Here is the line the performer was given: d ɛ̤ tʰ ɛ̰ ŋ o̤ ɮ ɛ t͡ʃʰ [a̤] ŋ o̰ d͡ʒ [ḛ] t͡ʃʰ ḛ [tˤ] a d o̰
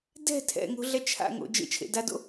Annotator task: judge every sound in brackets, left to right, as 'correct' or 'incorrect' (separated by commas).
incorrect, correct, incorrect